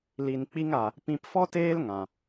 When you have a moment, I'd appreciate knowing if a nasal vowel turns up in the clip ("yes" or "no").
yes